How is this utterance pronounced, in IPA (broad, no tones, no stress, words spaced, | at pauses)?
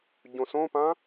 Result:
ɟõsõpã